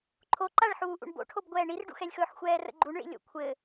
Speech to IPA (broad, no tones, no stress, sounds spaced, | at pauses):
ǃʰ o ǃ a ɭ ħ uː ʔ ṵ ɳ b o̰ ʈʰ o b ɡʷ ɛː ɳ i r ɖ ṵ x ɛ lʲ x ɵː ħ xʷ ɛː r ə̰ ɡ͡ǃ u ɳ ɭ ḭ lʲ o̰ kʷʰ ɘ